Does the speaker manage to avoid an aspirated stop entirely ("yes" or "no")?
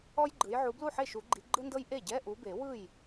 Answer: yes